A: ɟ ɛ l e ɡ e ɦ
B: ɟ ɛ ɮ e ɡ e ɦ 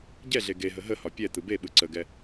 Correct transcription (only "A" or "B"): B